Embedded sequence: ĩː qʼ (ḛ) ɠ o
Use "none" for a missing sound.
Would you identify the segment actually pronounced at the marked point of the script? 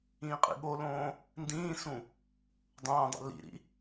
ḭ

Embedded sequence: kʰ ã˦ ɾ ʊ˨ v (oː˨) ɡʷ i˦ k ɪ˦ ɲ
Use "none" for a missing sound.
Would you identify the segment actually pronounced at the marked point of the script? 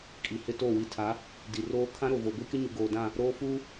o˨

